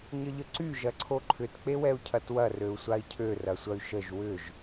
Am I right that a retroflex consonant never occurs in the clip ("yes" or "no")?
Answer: yes